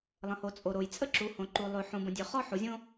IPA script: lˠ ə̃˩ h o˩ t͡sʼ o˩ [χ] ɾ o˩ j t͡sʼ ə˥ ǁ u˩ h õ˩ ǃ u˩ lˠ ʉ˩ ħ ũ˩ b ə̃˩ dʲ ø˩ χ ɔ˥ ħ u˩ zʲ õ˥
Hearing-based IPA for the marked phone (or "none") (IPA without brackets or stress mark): none